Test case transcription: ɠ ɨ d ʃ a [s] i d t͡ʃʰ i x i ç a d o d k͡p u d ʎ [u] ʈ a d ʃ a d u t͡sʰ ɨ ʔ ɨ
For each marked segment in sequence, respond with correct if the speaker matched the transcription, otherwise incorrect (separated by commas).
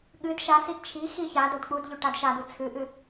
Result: correct, incorrect